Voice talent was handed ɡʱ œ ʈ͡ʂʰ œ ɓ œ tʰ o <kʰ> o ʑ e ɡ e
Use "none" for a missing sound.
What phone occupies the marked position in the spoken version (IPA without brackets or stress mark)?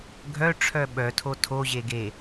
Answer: tʰ